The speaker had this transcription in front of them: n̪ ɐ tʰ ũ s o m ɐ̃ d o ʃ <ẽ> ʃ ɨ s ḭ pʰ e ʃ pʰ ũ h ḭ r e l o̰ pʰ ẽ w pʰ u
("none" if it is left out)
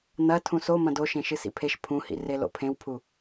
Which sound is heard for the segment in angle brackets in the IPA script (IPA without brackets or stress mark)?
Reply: ẽ